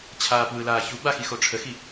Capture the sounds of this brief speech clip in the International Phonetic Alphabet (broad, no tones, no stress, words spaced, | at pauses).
t͡ɕʰaːpwɯlaː çu ɡ͡baxixo ʈ͡ʂʰəxi